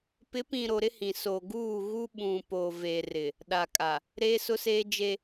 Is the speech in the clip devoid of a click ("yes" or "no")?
yes